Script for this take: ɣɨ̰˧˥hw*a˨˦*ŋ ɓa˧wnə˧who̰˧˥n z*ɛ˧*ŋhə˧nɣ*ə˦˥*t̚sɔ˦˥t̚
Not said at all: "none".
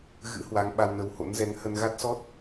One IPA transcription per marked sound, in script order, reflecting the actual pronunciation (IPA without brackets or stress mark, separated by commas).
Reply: a˨˦, ɛ˨˦, a˦˥